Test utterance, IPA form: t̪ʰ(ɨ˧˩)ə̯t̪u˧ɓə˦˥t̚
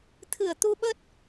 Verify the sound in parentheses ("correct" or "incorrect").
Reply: correct